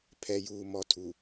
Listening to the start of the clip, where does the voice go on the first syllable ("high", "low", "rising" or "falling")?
low